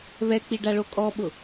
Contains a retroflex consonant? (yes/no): yes